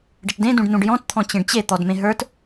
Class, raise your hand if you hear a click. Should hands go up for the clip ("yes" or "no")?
no